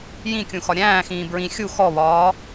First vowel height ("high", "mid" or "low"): high